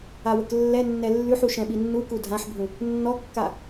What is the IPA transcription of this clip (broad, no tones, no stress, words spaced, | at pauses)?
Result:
awəklːɛnːɛ lːʉħu ʃɛ̃ɓinːuku dʱãħbʱũ | nːɔkːa